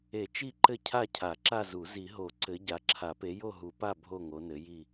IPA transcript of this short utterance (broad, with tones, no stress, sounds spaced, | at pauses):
e˨˩˦ t͡ʃ i˦˨ ǃ ɘ˦˨ cʰ a˦˨ cʰ a˨˩˦ ǁ a˦˨ z u˨˩˦ z i˨˩˦ ɦ o˨˩˦ ǀ ɘ˨˦ ɟ a˨˦ ǁʰ a˨˩˦ p e˨˦ j o˦˨ ɦ u˨˩˦ p a˦˨ bʱ o˦˨ ŋ o˨˦ n ɘ˨˦ j i˦˨